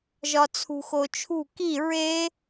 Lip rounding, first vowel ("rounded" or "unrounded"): rounded